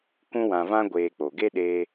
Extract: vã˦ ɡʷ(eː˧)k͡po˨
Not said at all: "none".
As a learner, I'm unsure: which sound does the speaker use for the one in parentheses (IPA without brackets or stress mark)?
eː˧